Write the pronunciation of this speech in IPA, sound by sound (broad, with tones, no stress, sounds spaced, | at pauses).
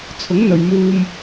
t͡sʰ ʊ˨˥ ŋ n̪ ɵ˨ ɥ m uː˧ m